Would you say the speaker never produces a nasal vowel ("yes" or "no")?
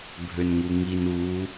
yes